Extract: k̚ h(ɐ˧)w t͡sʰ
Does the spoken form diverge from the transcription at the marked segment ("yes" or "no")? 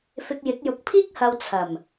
no